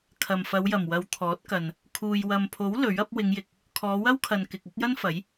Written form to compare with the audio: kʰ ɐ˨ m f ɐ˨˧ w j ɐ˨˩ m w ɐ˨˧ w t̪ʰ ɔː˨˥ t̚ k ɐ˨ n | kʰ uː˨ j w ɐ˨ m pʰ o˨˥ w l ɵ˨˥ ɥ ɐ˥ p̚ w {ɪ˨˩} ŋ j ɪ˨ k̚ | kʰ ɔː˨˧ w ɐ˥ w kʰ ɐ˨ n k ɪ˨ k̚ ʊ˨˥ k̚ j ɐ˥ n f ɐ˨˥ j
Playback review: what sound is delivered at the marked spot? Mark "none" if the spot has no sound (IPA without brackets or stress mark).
ɪ˨˧